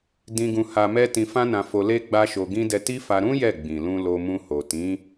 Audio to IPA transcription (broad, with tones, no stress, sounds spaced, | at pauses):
d ĩ˧ ɡ ũ˧ h a˧ m ɛ˦ t ĩ˧ f ã˦ n ã˧ f o˧ l e˦ ɡ͡b a˦ ʃ o˧ ɡ ĩ˧ d ɛ˧ t i˦ f a˧ ɾ ũ˦ j ɛ˦˨ ɡ͡b ĩ˨ l ũ˧ l o˧ m ũ˧ h o˨ t ĩ˨˦